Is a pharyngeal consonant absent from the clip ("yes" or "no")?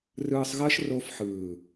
no